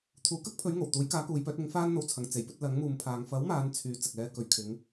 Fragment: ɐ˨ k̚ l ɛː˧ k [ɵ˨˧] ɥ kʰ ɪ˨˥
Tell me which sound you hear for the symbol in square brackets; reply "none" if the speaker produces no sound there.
ɵ˨˧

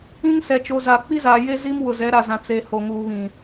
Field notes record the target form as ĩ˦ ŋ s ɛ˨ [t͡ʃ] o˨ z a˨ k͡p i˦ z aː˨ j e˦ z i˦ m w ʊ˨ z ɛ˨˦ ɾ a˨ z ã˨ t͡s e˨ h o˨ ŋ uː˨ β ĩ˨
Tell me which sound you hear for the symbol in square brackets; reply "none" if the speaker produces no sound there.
t͡ʃ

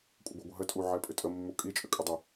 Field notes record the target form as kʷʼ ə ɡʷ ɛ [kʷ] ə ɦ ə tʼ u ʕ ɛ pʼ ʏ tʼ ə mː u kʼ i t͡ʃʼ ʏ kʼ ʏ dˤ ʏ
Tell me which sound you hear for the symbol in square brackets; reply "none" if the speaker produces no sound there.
ɡʷ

